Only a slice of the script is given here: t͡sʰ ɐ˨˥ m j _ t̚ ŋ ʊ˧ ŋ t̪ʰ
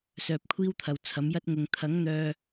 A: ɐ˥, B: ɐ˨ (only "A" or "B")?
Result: A